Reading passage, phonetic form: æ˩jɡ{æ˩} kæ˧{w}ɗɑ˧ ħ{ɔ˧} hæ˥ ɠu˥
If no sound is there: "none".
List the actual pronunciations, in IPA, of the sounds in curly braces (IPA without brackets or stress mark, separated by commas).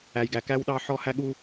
æ˩, w, ɔ˧